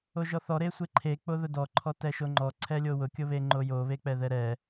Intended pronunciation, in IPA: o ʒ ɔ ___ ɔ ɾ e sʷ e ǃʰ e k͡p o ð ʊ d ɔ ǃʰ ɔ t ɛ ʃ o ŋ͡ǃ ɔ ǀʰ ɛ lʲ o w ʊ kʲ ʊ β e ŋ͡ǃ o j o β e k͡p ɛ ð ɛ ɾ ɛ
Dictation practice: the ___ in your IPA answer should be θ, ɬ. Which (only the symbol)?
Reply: θ